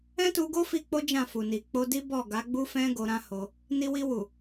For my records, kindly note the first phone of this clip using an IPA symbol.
ɛ̃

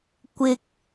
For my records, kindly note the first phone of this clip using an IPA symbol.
kʷ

